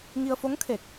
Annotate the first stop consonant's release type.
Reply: aspirated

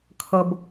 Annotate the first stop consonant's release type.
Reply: aspirated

